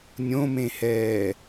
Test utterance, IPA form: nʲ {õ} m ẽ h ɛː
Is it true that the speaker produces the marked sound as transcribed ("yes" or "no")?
yes